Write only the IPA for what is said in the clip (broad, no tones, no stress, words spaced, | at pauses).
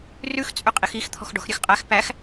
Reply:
rʉx t͡sʼɵqʼixix t̪ʰɔ̤xɖɔ̤xɾʲøxqʼæx pæx